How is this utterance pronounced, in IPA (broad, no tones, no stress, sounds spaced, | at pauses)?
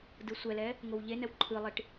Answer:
d ɯ sʷ ɛ l ɛ | ŋ o w ʎ e n ɛ w ǃʰ ɯ lˠ i ʈ